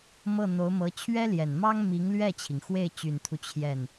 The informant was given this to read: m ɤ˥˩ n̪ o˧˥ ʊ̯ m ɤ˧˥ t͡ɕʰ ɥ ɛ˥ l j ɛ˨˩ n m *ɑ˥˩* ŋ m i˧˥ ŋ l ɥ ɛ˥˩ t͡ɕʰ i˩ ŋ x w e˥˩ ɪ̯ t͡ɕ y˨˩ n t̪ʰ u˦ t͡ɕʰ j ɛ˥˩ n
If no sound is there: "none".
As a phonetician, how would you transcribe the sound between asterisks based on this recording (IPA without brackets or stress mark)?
ɑ˥